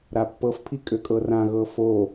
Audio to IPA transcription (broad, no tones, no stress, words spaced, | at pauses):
ɾapːɤfpʰi kʼøkʼɤrãɣɤ fo